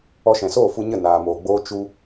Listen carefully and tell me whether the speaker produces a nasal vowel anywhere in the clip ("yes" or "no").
yes